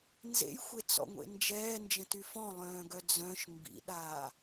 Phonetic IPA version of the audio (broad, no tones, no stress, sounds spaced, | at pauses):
n z ḛ j xʷ e t͡s ɔ̰ ŋʷ ḛ n d͡ʒ ɛː n d͡ʒ ə̃ t y f ɔ̃ lˠ œ̃ː ɡ œ d͡z œ̃ ʃ m b ḭ ɗ aː